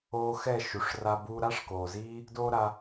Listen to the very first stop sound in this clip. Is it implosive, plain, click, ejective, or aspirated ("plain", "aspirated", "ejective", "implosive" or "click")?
plain